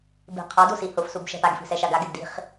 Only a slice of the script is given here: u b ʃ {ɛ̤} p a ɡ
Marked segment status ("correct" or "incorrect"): correct